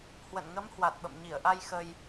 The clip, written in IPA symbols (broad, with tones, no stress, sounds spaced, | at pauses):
h w ə̰˧˨ n ŋ ə˨˦ m h w a˨˩ t̚ ɓ ə̰˧˨ m ɲ i˧˩ ə̯ ʔ a˧ j x ə˧ j